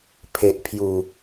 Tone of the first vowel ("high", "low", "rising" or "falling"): low